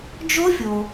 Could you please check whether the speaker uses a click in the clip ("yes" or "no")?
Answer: no